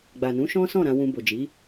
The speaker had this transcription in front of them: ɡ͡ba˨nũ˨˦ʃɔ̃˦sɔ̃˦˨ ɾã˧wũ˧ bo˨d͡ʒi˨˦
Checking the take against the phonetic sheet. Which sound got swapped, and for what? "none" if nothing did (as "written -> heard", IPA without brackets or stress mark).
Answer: none